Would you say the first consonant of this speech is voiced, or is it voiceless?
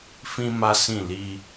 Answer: voiceless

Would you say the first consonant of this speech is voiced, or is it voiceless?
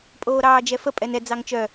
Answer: voiceless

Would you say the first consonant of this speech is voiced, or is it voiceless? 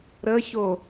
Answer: voiced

